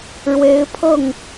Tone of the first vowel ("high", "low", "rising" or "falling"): rising